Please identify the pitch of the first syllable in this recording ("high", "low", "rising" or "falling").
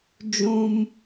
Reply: high